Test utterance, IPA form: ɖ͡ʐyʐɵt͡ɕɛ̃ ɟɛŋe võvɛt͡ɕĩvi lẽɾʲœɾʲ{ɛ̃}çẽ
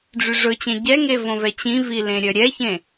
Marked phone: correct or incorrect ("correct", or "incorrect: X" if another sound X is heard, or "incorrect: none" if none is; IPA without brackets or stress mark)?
incorrect: ɛ